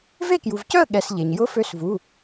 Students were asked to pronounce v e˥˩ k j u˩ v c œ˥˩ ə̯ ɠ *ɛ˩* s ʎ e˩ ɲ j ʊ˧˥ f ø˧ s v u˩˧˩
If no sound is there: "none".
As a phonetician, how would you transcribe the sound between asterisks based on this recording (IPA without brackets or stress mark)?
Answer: ɛ˩